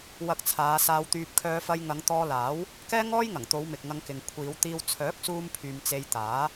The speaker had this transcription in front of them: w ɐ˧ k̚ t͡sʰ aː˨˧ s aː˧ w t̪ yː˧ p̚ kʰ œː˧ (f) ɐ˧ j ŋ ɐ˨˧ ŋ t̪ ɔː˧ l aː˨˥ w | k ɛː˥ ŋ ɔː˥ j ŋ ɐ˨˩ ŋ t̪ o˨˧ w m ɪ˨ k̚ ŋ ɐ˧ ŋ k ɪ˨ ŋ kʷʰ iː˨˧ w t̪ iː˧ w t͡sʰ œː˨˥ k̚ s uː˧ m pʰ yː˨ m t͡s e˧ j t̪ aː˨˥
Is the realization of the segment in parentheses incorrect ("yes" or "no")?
no